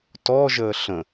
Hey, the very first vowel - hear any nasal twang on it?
no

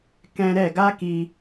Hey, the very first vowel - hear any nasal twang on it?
yes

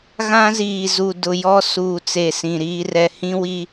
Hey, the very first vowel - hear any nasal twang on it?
yes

